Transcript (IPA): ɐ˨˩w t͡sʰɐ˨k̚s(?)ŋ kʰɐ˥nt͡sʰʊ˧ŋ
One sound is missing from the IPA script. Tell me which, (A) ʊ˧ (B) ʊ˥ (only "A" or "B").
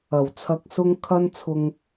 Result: A